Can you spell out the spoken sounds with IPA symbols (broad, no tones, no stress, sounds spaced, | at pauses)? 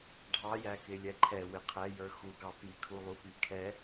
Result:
ɖʱ ɑ j æ k ɪ lʲ ɛ ǃʰ ɛ w ɪ qʰ ɛ j ə˞ x u ɡ ɑ p i kʰ u lˠ u p i kʰ ɛ